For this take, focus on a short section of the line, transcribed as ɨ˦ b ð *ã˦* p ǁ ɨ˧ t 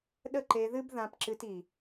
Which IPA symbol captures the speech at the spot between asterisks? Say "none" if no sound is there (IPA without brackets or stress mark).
ã˧